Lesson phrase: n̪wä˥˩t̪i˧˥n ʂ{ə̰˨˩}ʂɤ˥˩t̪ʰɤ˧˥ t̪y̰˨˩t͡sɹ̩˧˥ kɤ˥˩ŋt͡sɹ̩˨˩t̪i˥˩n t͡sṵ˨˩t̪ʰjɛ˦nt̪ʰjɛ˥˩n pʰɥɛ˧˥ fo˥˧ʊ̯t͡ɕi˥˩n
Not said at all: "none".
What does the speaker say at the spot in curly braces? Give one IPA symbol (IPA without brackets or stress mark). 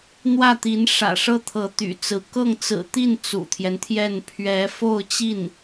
ä̰˨˩